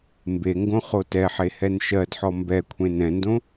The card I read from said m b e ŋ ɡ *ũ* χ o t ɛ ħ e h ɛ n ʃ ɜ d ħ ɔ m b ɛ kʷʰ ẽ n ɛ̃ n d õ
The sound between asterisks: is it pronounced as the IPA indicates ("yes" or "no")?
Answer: no